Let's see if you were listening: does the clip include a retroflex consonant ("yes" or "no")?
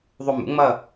no